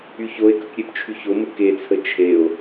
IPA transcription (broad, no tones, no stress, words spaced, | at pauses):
yçoe̯kək ɾʲept͡ʃʰyçomə ket͡sʰə t͡ʃʰeo̯